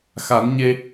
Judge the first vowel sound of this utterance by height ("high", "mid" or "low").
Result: low